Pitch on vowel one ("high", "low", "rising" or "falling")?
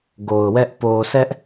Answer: low